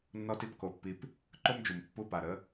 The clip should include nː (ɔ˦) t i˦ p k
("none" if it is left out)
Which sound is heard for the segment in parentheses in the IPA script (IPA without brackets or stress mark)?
ɔ˦